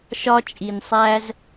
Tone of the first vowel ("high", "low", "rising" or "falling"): high